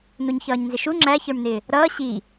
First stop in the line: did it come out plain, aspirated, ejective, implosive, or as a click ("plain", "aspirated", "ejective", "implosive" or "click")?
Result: click